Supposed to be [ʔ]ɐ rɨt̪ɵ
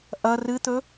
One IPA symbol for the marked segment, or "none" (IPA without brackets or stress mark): ʔ